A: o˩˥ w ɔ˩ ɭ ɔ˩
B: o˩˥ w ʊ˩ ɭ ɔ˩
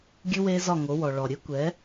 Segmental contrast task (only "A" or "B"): A